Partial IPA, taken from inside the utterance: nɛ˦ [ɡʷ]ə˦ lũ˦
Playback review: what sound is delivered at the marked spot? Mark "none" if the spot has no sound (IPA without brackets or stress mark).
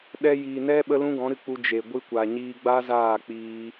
ɓ